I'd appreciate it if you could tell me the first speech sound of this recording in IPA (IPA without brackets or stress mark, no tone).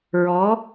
ɹ